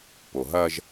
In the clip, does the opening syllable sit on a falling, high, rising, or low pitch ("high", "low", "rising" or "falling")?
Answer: low